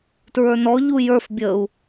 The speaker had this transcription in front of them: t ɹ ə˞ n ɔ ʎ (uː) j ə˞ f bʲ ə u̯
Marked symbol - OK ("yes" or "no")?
no